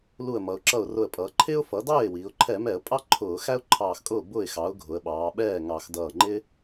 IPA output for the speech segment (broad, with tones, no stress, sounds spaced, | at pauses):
l u˧˩ ə̯ m ʌ˩˧ ʊ̯ ǁ ʌ˧˩ ʊ̯ r ʊ˧˩ ə̯ pʼ ʌː˩˧ ǃʰ ɪː˥ ʊ̯ f ʌ˩˥ d ɑː˥˩ ɪ̯ w iː˩˧ ʊ̯ ǃʰ ɛ˧˩˧ m ɛ˧˩˧ ə̯ pʼ ɑ˥ ǃʰ ʊː˧˩˧ x æ˥ ʊ̯ ǃʰ ɑː˧˩ x kʼ ʊː˥˩ b ʊː˥˩ ɪ̯ x ɑ˩˥ ʊ̯ ɡʱ ʊ˩˧ ə̯ ɓ ɑː˩˧ ɓ ɛː˥˩ ŋ ɑ˧˩˧ x d ʌː˧˩ ŋ͡ǃ ɪː˥